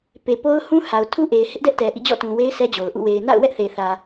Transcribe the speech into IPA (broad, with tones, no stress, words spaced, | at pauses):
pe˨po˦ʊ̯hũ˦ha˨ʊ̯ tʰu˦ ʔe˨ɪ̯hɪ˦ʔdɛ˦ʔtɛ˨ ʔḭ˦˨d͡ʑɔ̰˦˨tũ˨we˦ɪ̯ sɛ˦d͡ʑo˨ʊ̯ʔṵ˦˨ we˨ɪ̯ na̰˦˨ʊ̯wɛ˦ʔθe˨θä˨